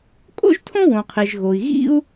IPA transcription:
kʼ o̰˥ ʒ tʰ õ˥ w õ˩ qʰ e˩ ʒ ɣ o˩ i̯ ɣ ḭ˥ u̯

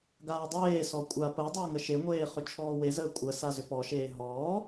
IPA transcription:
ɡ aː dˤ eː s ɔ kʷʼ a p əː dˤ əː ŋ ə ʃ e ŋʷ eː χ ʏ t͡ʃʰ ɔː w e z əː kʷʼ ə s a z ʏ p ɔ ʃ eː ɦ ɔː

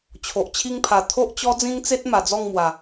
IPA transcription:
t͡ɕʰ o˨ ʔ t͡ɕʰ i˦ ŋ pʰ a˨˩ t̪ʰ o˦ ʔ t͡ɕ ɔ˦ d͡z ĩ˦ ŋ t͡s e˦ t̚ m a˨˩ d͡z ɔ˥˧ ŋ m w a˨˩

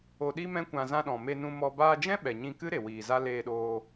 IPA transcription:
o˧ ɗ i˦ m ɛ̃˦ kʷ ã˧ z ã˧ ɗ ɔ̃˨ m e˧ n ũ˧ m ɔ˧ b aː˧ d͡ʒ ɛ̃˦ ɓ ɛ˨ ɲ ĩ˧ k ɨ˦ ɾ e˨ w iː˨ z a˦ l eː˧ ɗ oː˧

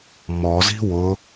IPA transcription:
m ɔ z i̤ w ʊ

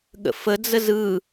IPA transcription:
ɠ ə̰ f ə d͡z ə z ɯ

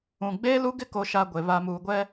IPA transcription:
ũ˨ ɡ͡b eː˦ l u˦ ɡ ɪ˦ k o˨ ʃ a˨ ɡʷ e˨ β a˨ m uː˨ ɡʷ ɛ˦

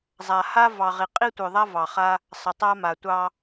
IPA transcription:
zˤ a˨ h a˦ v ɑ˨ ʁ i˨ qʼ i˦ tʷ œ˨ ðˤ a˦ v ɑ˨ χ a˦ | sˤ ə˨ tˤ a˦ m a˨ tʷ ɑ˦

